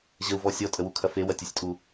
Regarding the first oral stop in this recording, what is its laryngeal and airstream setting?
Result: ejective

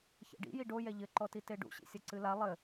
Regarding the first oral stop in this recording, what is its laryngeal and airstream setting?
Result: plain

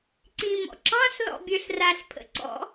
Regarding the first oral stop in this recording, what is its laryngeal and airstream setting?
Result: click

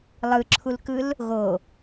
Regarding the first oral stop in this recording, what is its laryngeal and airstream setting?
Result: click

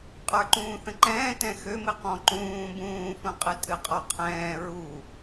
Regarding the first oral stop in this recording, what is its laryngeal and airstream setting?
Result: ejective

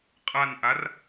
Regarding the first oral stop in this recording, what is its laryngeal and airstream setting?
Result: ejective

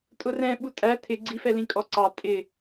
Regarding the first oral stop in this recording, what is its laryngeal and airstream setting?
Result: ejective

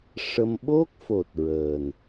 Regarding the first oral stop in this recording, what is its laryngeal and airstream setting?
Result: implosive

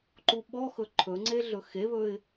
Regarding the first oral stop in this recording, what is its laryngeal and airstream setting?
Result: click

